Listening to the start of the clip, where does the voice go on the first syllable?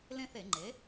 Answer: high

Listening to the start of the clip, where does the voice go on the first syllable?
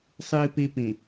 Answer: low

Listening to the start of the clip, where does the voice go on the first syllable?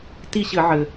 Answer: falling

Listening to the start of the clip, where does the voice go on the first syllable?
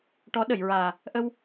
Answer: rising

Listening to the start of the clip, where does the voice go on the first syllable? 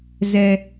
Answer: low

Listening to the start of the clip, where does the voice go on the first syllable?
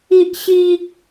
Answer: high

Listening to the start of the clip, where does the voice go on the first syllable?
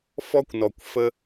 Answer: high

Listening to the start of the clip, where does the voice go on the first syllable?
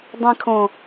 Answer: high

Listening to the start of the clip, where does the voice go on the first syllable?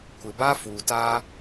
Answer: low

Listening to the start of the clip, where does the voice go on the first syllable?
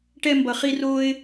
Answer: high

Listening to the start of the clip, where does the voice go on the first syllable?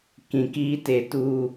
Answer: low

